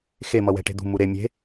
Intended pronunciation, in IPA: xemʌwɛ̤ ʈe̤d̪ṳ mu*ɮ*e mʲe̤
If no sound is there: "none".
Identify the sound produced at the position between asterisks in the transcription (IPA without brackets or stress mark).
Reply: ɾ